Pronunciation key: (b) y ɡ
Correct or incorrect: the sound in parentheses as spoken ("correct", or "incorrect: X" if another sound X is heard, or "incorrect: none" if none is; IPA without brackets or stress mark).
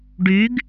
incorrect: ɖ